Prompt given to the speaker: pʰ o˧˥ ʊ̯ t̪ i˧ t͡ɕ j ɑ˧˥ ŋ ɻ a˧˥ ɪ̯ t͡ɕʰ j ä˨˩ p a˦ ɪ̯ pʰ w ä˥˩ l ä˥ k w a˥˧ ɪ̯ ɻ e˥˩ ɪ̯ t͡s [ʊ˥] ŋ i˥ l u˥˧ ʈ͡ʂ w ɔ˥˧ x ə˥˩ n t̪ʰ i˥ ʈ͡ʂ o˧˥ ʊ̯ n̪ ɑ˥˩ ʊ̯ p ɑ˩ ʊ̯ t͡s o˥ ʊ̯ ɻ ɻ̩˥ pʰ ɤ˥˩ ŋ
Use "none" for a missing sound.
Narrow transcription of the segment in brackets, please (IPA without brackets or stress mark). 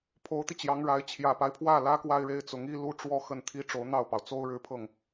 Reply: ʊ˧˥